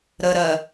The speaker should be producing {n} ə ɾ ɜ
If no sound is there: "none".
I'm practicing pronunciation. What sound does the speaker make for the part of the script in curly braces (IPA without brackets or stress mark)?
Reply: ɾ